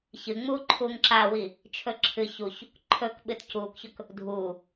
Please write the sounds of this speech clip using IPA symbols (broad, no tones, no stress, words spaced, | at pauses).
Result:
çɨŋ͡muːǃʰuːŋ ǁawi | t͡ʃʰɵǁʰɨ çuç | ǃʰɵk ɓɨtcuːkçɵk | dʱuː